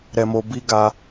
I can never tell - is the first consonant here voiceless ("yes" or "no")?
no